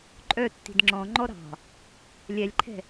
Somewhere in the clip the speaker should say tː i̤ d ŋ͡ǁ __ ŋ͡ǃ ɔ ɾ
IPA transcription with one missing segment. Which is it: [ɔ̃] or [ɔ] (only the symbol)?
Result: ɔ̃